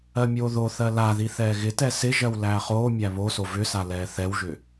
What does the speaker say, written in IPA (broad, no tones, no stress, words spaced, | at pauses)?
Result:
ɜmʲoːðoθɜ laði θɛːɣɪtɛ sɪʒɜw læːχoːmʲæ βoso vʏsa lɛːθɛwʒʏ